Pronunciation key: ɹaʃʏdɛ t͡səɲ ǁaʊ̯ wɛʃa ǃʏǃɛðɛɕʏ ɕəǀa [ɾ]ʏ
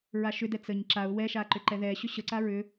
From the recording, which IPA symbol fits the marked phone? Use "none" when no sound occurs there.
ɹ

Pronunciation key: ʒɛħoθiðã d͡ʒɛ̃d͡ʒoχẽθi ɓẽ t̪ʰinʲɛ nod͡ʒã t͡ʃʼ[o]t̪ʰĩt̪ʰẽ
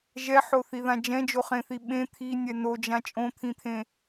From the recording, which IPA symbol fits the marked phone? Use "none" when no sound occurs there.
õ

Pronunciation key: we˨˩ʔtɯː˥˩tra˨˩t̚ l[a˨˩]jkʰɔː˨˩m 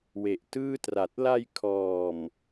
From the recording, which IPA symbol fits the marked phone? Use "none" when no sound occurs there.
a˧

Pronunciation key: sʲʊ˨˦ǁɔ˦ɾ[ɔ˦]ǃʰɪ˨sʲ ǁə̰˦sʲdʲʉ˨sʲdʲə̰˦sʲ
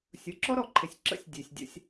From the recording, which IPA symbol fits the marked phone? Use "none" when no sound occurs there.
ɔ˨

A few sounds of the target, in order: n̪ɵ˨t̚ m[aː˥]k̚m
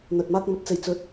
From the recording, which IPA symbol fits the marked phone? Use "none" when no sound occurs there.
aː˥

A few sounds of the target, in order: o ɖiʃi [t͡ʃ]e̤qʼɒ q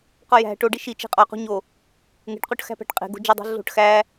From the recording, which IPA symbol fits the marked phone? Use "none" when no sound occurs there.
t͡ʃ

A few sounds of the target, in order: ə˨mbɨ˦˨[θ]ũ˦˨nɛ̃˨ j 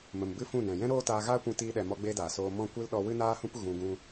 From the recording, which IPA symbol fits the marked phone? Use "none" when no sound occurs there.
f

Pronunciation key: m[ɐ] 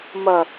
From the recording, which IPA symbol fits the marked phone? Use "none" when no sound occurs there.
ɐ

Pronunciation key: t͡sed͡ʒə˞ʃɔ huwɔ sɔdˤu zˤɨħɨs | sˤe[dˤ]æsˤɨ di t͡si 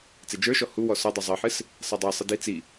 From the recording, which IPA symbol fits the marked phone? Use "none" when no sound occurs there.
dˤ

